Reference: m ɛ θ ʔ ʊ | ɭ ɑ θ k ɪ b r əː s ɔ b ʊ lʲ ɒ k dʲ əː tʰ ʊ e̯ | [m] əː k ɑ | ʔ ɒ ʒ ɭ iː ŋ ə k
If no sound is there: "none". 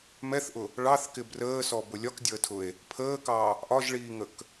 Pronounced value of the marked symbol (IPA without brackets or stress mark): pʰ